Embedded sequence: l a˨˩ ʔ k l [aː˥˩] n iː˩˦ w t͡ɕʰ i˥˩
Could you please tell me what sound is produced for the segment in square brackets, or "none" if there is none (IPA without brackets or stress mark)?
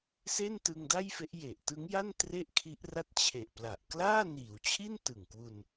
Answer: aː˥˩